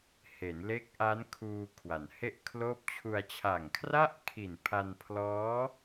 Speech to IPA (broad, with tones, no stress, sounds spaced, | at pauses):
h e˩˦ n l e˦˥ k̚ ʔ a˦˥ n kʰ uː˧ kʰ w a˩˦ n h e˥˩ ʔ kʰ l oː˥˩ p̚ t͡ɕʰ u˧ a̯ t͡ɕʰ a˨˩ ŋ kʰ r a˥˩ ʔ kʰ i˨˩ n pʰ a˧ n pʰ l ɔː˦˥